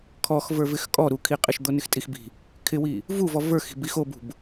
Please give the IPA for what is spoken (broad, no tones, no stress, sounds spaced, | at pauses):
kʰ ɔ x v ə˞ v ɪ x kʼ ɔ ɾ u kʰ i qʼ ɪ ʃ d̪ o n ɪ x tʼ i x b i̤ | kʰ ɪ w i | v u v ɔ v ə˞ x i̤ b i x o b ṳ b